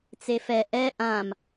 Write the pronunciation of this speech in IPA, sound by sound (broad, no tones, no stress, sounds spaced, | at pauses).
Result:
t͡s e f ɛ ʔ ɛ ʔ ã m